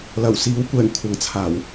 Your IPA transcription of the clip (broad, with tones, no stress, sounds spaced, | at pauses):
l ɐ˨˩ w s iː˨˥ w kʷ ɛː˨˩ ŋ kʷʰ ɐ˨ ŋ t͡sʰ aː˨˩ w